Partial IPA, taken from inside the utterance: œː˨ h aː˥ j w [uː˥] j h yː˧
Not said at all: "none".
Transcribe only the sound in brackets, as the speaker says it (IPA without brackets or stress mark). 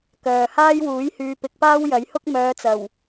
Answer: uː˨˥